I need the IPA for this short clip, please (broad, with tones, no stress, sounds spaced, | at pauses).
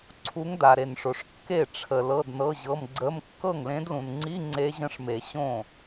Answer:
ǀʰ u˧˥ ŋ d a˨ ɾ e˨ n ʂ o˨ ʂ kː e˥˩ ʈ͡ʂʰ ə˨ l ɤ˧˥˧ d n ɤ˧˥˧ ʑ ɤ˧˥˧ m ɡ͡ǀ ə˧˥˧ m kː ɤ˥˩ ŋ l ẽ˧˥ d l ũ˨ n ŋ͡ǀ i˧˥˧ ŋ͡ǀ e˧˥ ʑ ə̃˧˥ ʂ m e˨˩˦ ɕ õ˥˩